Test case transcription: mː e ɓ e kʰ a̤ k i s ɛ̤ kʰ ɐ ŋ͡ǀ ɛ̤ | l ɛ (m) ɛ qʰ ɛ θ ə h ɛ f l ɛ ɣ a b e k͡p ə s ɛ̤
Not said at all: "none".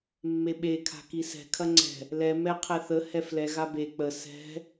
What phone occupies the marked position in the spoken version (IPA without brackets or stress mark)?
m